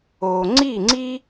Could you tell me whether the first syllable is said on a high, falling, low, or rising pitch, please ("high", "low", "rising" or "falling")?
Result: low